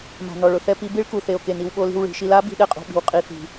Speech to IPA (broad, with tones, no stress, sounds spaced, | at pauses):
m a̤˨ n ɔ˨ ɭ ʊ˨ θ ɛ˧ p i˧ b i˦ ɭ k u˨ θ e˨ o̯ k e˨ n i˧ w ɓ o˧ l i̤˧ w ɭ i̤˨ ʃ i˧ l a˨˦ b i̤˧ ɗ ɛ˧ qʼ o̤˨ ɓ i̤˨ w qʼ i˨ θ i̤˨